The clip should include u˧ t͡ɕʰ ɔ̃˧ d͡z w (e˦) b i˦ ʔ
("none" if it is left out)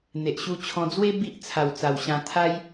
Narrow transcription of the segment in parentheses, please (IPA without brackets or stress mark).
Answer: e˦